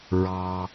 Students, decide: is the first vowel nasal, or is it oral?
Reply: oral